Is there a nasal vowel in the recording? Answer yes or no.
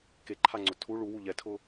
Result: no